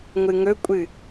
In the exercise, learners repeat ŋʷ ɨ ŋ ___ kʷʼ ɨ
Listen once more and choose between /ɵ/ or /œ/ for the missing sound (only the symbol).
ɵ